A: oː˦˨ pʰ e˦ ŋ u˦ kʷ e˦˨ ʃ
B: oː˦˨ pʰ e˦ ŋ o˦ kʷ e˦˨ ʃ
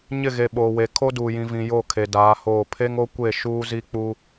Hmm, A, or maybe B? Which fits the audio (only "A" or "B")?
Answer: B